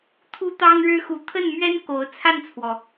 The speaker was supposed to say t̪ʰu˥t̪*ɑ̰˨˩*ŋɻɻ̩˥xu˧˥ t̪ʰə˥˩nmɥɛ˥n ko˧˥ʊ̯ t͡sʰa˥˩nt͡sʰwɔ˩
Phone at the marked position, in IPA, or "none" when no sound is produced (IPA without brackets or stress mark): ɑ˥